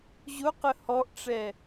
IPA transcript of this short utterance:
ʑ ʊ q ə h ɔ ʔ ʈ͡ʂ ɛ

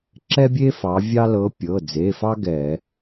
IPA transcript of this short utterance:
ǁ ɛ˥ bʲ e˥ f ɑ˩˧ vʲ ɑ˥ l ɤ˧˥ pʲ ɤ˩˧˩ d͡z e˩˧˩ f ɑ˥ ɡ ɛ˧˩˧

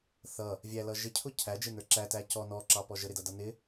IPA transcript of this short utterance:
θ ʌ | vʲ æ l ʌ ʒ ɪ cʰ ʊ cʰ æ d͡ʒ ɪ n ə˞ ǁ æ t æ c ɔ n ɔ ǁ ɑ p ɔ ʒ ə ɾ ɪ d ʌ d ʌ n ɪ

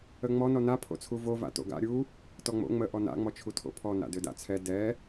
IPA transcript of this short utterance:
ə ŋ͡m ɔ n ɔ n a pʰ o̰ t͡sʰ u v o v a̰ t o̰ ɡ a̰ ɾʲ u | t ɔ ŋ͡m o̰ ŋ͡m ə ʔ ɔ n a̰ ŋ͡m ɔ t͡ʃʰ u tʰ o̰ pʰ ɔ n a̰ d ø d a̰ t͡sʰ ɛ d ɛ

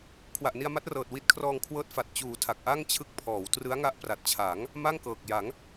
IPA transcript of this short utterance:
kʰ w a˨˩ ʔ n i˧ a̯ m a˦˥ t̚ r ɤː˨˩ t̚ w i˦˥ t̚ kʰ r ɔː˧ ŋ kʰ w ɤː˦˥ t̚ f a˨˩ t̚ t͡ɕ uː˨˩ tʰ a˨˩ k̚ ʔ a˥˩ ŋ t͡ɕʰ ɯ˦˥ k̚ pʰ ɔː˩˦ w t r ɯ˦˥ a̯ ŋ a˦˥ ʔ p r a˨˩ t̚ t͡ɕʰ a˩˦ ŋ | m a˥˩ ŋ k ɤː˨˩ k̚ j a˩˦ ŋ

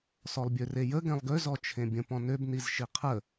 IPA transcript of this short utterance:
s ɔ lˠ bʲ ø r e j ə ɡ ɛ̃ lˠ ɡ ø z ɔ t͡ʃʰ ẽ bʲ ə̃ p ɔ̃ n ø b n i z ʃ i qʰ ə

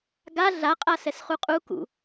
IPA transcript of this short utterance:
ɡ a ɮ a qʼ a s ɛ s χ u qʼ u k ṵ

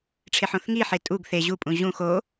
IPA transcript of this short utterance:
ʈ͡ʂʰ e ħ õ θ ŋ i ħ e tʼ u ɡ θ e ʑ u pʼ ũ ʑ ũ x o

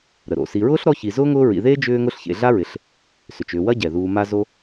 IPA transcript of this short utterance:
ɾ ə˩ ɾ o̰˩ s i˨ ɹ ʊː˥ ɬ ɾ ɔ˦ ç i˨ z ʊː˥ ŋ ʊː˦ ɹ ḭ˨ ð eː˥ d͡ʒ ʏː˦ ŋ ʊ˦ ɬ ç ḛ˨ ɮ a˥ ɹ ɪ˨ ɬ | s ʏ˩ t͡ʃ ʏː˨ w ɐ˥ ɟ ɛ˩ ð uː˨ m a˦ z o˦

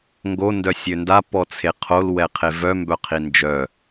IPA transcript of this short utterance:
ŋ ɡ o n d œ sʲ ø n d a p ɔ t͡sʰ e qʰ o l w ɛ qʰ e v œ m b œ qʰ i n d͡ʒ œ

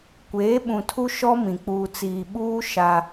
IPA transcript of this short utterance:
kʷ eː˨˦ ɓ ũ˨ tʰ u˦ ʃ ɔ˦ m ĩ˨ k͡p uː˨ t͡s iː˨ ɓ uː˦ ʃ a˦

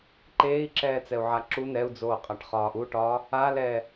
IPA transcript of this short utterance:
ǃ eː i̯ ǁ ɛː t͡s ɛ u̯ ʕ a ǁ u n ɛ u̯ d͡z oː qʼ a ʈ χ ɒː ʔ u ʈ ɒː | a l ɛː

